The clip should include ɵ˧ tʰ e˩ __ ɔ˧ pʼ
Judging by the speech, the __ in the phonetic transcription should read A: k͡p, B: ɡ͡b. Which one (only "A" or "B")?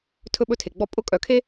B